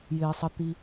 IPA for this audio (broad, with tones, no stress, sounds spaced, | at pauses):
j ɪː˩ sˤ ə˩ t̪ i˩